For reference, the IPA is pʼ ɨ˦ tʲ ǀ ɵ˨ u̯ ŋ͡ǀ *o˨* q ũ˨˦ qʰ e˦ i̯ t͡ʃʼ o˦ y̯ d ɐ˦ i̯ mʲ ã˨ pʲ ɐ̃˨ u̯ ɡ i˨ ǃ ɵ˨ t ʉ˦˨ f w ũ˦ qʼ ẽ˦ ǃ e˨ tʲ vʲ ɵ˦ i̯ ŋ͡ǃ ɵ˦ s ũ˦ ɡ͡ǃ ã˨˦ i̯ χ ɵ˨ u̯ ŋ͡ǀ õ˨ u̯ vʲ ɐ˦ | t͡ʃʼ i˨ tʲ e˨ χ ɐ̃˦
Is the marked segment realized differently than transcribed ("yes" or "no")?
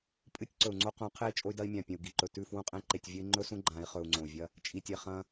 yes